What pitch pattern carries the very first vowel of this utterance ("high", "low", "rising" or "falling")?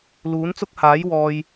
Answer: rising